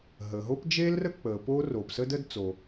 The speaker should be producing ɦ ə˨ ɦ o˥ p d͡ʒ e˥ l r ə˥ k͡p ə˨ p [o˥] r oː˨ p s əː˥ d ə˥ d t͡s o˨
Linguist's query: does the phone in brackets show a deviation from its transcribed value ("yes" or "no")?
no